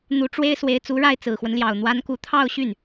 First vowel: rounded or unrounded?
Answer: rounded